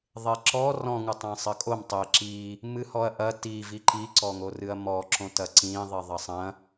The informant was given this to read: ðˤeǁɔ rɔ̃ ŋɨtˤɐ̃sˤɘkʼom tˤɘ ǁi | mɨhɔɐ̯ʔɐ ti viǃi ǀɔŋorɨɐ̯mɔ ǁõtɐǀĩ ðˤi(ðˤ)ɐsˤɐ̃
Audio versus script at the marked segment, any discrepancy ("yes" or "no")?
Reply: no